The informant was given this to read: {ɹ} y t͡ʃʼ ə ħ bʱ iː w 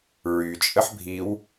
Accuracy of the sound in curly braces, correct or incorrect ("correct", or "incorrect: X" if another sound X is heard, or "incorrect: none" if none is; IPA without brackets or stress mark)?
correct